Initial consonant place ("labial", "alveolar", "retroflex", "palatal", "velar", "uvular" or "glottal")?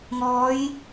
velar